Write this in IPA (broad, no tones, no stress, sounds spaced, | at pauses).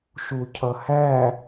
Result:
ʃ u cʰ ʌ h æ